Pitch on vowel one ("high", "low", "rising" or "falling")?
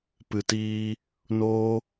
low